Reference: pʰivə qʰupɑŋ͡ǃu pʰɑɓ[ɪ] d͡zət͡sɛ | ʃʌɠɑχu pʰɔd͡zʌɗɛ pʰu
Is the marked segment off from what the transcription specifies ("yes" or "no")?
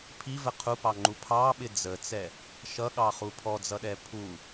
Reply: no